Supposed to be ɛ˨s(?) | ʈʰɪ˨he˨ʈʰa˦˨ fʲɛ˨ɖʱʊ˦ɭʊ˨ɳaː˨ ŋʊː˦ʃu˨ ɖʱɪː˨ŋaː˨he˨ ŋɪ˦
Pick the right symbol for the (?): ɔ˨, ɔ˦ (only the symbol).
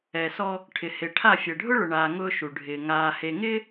ɔ˦